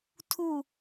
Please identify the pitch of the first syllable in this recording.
falling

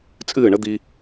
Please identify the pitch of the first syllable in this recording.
falling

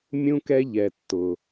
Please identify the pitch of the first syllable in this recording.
high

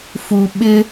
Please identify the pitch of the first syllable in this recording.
low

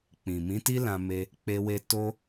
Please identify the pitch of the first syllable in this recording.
low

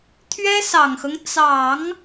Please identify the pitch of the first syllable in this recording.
high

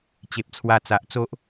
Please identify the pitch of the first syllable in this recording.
low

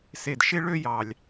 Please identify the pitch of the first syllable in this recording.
low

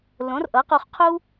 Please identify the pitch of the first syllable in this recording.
rising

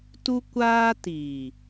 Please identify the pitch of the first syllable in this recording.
high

